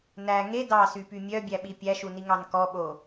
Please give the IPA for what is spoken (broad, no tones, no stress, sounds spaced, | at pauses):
n æ ŋ e d ɑ s y p y mʲ œ bʲ æ ɓ i pʲ æ ʃ u n i ŋ ɑ n k ɔ ɓ o